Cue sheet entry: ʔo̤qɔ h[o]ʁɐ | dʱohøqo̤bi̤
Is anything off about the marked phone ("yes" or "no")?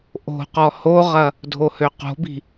no